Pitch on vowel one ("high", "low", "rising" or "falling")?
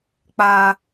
high